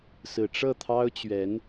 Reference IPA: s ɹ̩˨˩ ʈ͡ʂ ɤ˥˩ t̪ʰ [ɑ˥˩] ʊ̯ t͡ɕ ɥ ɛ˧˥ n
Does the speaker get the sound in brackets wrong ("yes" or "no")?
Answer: yes